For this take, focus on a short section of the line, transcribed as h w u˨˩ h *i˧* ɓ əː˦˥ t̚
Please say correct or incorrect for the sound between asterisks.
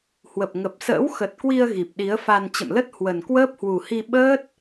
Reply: correct